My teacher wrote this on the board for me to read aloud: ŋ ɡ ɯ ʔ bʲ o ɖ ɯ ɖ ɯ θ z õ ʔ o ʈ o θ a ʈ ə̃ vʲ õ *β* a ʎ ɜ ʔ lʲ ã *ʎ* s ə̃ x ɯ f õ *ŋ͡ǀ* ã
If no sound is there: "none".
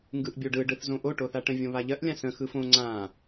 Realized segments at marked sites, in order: β, none, ŋ͡ǀ

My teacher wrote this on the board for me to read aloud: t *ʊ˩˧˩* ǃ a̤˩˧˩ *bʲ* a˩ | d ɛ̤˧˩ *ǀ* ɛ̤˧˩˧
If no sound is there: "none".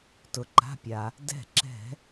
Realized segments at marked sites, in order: ʊ˩, pʲ, ǁ

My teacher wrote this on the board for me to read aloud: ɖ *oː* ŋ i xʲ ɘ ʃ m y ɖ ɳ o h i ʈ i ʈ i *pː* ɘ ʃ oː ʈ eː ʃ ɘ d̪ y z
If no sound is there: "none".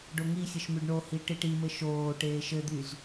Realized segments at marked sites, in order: o, m

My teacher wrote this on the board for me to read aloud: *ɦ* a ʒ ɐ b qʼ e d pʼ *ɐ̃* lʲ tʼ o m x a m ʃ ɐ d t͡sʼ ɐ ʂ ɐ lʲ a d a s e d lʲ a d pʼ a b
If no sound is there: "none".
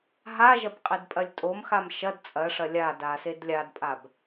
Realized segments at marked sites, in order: ɦ, ɐ

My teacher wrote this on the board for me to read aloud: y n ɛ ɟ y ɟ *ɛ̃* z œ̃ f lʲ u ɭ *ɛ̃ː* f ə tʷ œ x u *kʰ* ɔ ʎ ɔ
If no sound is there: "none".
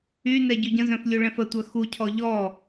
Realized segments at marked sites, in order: ə̃, ɛ̃, cʰ

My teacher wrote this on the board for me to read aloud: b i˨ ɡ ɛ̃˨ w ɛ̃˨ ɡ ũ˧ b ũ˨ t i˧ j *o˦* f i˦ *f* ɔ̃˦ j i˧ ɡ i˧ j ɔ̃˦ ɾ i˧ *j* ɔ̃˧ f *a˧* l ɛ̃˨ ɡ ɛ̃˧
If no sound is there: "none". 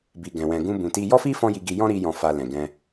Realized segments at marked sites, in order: ɔ˦, f, j, a˧

